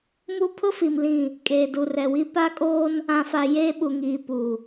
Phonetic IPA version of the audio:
m u˦ pʰ ʊ˦ f i˨ m l ĩ˦˨ | kʼ eː˨ d u˨ r ɛ˨ w i˦ p a˦ kʼ oː˦ n | ã˨ f a˨ j eː˦ ɓ u˨ ŋ iː˨ p u˨

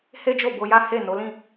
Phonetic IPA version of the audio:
h e˦ d͡ʒ o˦˨ b o˧ j a˦ h e˦˨ n o˨˦ l ĩ˦˨

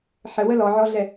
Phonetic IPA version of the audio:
ħ ə w ə l ɔ ʕ ɔ ɮ ɛ

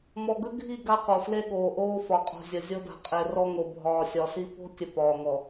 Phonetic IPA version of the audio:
m ɔ˨ ɡ ə˦ ɡʱ i˦˨ ɡ a˦ q o˨ f l e˦ ɠ oː˨ ʔ oː˦ f ɒ˨ qʼ o̤˨ zʲ ə˨ zʲ o˦ d a̤˨ qʼ e˨ r ɔ˦ ŋ o˨ bʱ ɒː˨ sʲ ɒ˨ s i˦ p o̤˦ tʲ ə˨ p ɒː˨ ŋ ɔ˨

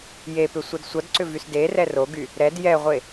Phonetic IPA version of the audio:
j e p ʏ sʷ ʌ d sʷ ʌ d ǀ ʏ v y s d e r ɛ r o ɡ y | ɾ ɛ d j ɛ ʁʷ e

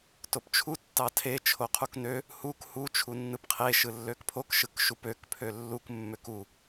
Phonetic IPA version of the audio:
t o p t͡ʃʰ u tː ɑ tʰ e t͡ʃʰ o qʰ u k n ø | h u k h u t͡ʃʰ u nː ɯ p qʰ e ʃ ɯ lː ø k pʰ o k ʃ ɯ k ʃ u p ø k pʰ ø lː u k mː ø k u

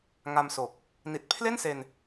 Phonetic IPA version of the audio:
ŋ a˧ m s o˨˩ k̚ | n i˨˩ t̚ pʰ l e˥˩ n s e˧ n

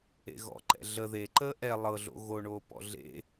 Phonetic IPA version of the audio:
ḛ ɣ ɔ̰ ǃ ɛ̰ ɮ ə ð e ǃ əː ʔ ɛ lˠ ɤ ɮ o̰ ɣ o ɳ oː p ɔ̰ ɮ ḛ

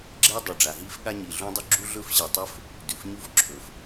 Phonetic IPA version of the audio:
ɡ͡ǁ e˥ dˤ ɵ˩ ɖ͡ʐ a˩ ɦ i˥ f ɠ a˥ ɲ i˩ ɮ ũ˥ dˤ ʉ˥ ɡ͡ǁ u˥ ɮ ɵ˥ f ɕ ɨ˩ tˤ ɵ˥ f | d ʉ˩ f ɲ u˥ f ǁʰ ɵ˩ f

